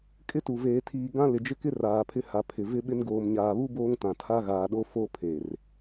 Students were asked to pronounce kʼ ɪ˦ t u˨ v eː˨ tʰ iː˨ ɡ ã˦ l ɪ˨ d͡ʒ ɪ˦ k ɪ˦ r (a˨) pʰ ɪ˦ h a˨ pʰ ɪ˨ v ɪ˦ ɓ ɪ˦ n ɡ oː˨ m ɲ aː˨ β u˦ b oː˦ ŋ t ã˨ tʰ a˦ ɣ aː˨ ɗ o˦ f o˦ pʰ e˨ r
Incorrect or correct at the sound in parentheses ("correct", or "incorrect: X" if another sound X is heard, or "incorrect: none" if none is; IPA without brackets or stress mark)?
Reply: incorrect: aː˨